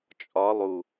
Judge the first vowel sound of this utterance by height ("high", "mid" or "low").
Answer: low